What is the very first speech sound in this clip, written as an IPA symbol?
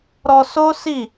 ɾ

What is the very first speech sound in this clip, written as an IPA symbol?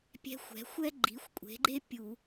pʲ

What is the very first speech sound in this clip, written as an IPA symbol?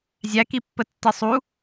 zʲ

